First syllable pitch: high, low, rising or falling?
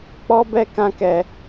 high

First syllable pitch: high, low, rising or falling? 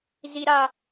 high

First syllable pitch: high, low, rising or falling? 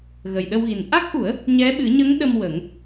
low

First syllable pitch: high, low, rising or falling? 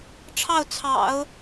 falling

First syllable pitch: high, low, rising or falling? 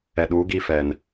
low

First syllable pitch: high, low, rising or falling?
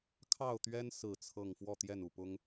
falling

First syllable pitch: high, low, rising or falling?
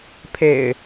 low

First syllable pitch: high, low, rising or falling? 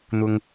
low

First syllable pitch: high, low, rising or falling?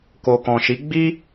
low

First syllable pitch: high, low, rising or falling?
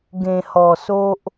low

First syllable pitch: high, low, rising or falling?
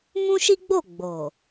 high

